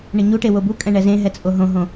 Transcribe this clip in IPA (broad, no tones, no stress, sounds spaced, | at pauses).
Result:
ɳ ɪ ɲ u ʈ e w o b u kʼ ɛ̃ ɳ ɛ z ẽ ɦ ɛ t͡sʼ o ɦ õ ɦ õ